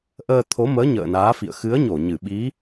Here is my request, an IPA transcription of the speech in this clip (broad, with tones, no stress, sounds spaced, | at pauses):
ʔ əː˧ t̪ʰ o˨˦ m əː˨˦ ɲ ə̰ː˧˨ n aː˨˦ f ḭ˧˨ ə̯ x ɨ˨˦ ə̯ ɲ o˧˩ ɲ ɨ˧˩ ɓ i˨˦